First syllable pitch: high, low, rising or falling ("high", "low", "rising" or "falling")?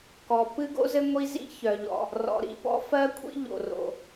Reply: low